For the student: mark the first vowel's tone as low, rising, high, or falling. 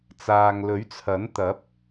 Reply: low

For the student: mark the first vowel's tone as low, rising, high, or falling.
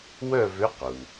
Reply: falling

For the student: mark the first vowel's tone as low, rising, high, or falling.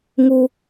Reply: high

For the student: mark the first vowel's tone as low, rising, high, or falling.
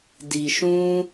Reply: low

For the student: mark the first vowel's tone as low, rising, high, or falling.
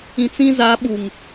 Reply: low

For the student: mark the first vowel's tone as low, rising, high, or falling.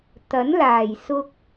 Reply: rising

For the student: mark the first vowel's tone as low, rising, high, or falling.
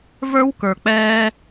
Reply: high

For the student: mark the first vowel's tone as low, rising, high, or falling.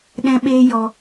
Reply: high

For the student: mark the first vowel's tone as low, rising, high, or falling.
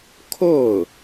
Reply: falling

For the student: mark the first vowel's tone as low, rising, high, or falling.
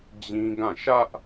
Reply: high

